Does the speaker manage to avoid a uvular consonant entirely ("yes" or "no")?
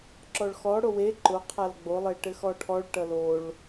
no